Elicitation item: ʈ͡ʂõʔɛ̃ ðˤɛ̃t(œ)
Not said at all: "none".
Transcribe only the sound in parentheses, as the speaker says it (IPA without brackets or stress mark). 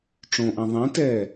ɛ